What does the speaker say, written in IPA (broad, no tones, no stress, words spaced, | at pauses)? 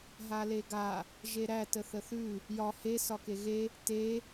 ɦaleɡa | ʒeɾæ təθəθʉ | jɒ he sɒkeɣe | te